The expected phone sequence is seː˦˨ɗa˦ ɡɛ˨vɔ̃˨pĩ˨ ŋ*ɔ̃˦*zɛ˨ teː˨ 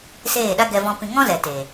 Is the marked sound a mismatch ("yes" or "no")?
no